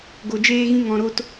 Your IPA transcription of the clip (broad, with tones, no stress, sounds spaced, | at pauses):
ɡ o˧ d͡ʒ eː˦ ɣ ĩ˦ ŋ ɔ̃˧ ɾ o˦ t